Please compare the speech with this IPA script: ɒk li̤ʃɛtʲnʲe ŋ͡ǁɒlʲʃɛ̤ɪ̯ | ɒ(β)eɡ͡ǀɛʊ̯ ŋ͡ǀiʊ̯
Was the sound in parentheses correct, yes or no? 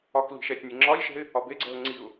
no